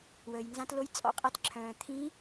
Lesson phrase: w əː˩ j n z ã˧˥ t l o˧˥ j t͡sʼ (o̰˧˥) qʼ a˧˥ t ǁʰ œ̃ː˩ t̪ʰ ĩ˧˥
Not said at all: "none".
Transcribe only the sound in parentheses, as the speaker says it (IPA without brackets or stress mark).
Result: ɔ̰˧˥